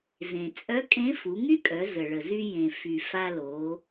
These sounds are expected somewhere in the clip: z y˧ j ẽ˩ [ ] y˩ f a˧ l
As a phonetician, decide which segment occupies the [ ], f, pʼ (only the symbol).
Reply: f